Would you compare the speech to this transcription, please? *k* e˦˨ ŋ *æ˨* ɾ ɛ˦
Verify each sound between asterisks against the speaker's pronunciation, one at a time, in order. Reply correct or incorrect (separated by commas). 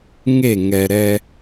incorrect, incorrect